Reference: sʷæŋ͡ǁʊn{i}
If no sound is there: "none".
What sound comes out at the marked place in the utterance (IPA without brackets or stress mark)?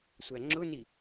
i